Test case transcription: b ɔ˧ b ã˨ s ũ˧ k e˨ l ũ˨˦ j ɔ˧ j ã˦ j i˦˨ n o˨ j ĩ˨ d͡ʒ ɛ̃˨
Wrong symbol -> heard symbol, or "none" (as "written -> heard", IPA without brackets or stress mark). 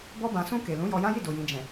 n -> d